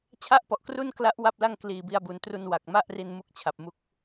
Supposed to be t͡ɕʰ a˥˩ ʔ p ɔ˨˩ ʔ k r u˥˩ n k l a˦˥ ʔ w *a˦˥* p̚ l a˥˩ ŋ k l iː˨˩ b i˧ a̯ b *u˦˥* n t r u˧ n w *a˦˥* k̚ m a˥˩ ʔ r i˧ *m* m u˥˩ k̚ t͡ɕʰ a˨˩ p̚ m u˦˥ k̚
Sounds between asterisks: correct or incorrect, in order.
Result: incorrect: a˥˩, incorrect: u˩˦, incorrect: a˨˩, incorrect: n

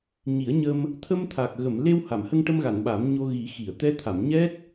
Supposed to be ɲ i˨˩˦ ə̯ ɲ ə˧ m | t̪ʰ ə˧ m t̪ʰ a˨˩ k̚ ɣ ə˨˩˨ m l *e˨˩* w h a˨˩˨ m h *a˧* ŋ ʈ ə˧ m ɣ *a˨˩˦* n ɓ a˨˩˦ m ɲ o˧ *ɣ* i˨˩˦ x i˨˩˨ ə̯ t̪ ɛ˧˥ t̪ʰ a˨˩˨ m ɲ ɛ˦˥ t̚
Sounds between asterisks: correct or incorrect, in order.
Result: incorrect: e˧, incorrect: ə˧, incorrect: a˨˩˨, correct

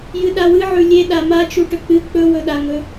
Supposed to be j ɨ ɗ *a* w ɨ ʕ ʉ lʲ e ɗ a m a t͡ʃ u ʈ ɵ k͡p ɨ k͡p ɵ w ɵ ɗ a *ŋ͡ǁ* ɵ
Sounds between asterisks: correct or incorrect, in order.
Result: correct, incorrect: ŋ

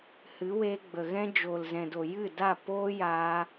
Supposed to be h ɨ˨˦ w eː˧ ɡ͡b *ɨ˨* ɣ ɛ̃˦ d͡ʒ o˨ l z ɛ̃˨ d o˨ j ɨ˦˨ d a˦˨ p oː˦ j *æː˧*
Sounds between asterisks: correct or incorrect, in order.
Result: incorrect: ə˨, incorrect: aː˧

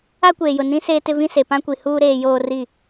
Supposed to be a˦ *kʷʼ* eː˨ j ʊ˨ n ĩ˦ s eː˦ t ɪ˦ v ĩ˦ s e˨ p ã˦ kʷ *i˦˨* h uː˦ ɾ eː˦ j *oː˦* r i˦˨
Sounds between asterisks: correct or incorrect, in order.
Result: incorrect: kʷ, incorrect: i˨, correct

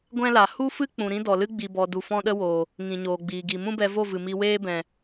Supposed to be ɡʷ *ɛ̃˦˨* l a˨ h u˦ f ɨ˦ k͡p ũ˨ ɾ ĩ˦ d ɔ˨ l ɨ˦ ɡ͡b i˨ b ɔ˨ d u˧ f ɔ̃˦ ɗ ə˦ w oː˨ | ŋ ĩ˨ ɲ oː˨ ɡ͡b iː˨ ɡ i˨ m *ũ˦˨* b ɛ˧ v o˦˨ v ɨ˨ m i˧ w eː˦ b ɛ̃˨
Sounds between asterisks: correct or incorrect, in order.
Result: incorrect: ɛ̃˦, incorrect: ũ˦

